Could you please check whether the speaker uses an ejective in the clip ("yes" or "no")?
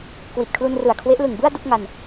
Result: no